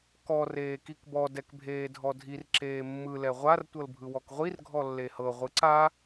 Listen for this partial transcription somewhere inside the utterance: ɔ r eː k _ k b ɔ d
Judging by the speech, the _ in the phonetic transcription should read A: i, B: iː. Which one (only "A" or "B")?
A